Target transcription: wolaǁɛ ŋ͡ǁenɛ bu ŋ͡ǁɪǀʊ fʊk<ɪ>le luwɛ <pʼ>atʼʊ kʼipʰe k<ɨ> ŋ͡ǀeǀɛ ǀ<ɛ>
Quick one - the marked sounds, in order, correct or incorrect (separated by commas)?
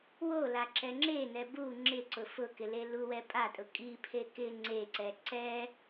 correct, correct, incorrect, correct